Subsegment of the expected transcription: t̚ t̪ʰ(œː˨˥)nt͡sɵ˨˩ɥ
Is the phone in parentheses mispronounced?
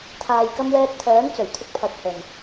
no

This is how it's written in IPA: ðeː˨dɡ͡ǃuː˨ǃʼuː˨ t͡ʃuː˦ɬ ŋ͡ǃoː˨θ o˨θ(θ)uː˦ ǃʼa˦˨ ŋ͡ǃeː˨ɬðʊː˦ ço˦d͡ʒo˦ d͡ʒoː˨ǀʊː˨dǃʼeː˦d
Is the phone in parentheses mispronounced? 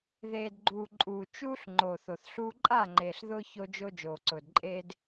yes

